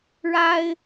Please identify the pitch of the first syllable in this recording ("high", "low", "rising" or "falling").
high